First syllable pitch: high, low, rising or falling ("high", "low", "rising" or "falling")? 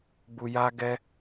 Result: low